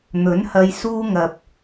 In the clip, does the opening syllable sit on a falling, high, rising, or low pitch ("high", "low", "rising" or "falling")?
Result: rising